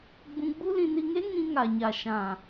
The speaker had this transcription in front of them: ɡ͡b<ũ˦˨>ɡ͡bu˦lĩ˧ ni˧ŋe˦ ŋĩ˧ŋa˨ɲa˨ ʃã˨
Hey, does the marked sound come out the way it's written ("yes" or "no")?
no